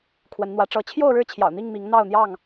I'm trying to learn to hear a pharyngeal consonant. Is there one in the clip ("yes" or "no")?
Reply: no